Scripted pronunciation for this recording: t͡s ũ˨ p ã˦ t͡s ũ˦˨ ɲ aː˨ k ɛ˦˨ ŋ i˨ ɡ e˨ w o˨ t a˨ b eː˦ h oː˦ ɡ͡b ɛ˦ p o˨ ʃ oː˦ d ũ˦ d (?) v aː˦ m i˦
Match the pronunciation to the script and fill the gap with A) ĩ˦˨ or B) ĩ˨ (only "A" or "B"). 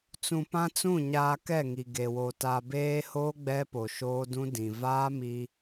B